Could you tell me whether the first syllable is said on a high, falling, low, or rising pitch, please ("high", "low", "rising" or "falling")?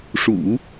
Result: low